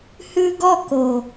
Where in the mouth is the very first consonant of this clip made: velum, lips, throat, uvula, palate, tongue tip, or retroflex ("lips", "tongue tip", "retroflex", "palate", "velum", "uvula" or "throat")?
throat